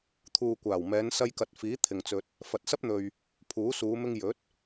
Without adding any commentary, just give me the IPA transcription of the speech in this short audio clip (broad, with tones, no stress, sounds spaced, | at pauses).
t̪ʰ uː˨ kʷ aː˨˩ w m ɛː˨˧ n s ɐ˧ j k ɐ˨ t̚ f iː˨˥ t̪ʰ ɪ˨ ŋ t͡s ɵ˧ t̚ | f ɐ˨ t̚ s ɐ˥ p̚ n̪ ɵ˨ ɥ | pʰ uː˨˥ s uː˨˧ m ɪ˧ ŋ j ɵ˨˥ t̚